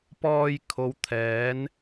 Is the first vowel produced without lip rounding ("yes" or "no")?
no